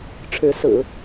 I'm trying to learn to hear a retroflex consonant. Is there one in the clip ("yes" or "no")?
yes